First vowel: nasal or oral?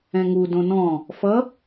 nasal